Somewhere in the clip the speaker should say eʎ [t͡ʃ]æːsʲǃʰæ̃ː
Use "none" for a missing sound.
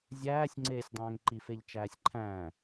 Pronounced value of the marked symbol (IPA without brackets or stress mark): t͡ʃ